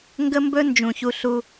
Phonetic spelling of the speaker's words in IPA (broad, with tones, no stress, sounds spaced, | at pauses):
ŋ ɡ ə˦ m b ɵ˦ n d͡ʒ ũ˦ ç u˦ ɬ u˦